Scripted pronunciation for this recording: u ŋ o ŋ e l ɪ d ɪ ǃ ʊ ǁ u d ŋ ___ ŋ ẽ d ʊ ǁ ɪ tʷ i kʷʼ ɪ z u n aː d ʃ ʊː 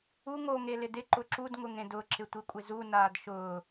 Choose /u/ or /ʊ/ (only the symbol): ʊ